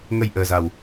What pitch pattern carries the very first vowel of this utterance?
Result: low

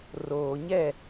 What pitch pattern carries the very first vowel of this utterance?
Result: low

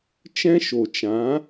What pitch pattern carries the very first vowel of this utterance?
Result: high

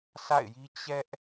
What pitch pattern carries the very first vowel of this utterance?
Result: falling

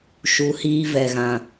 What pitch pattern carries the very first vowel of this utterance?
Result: rising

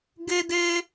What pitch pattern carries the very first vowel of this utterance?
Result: high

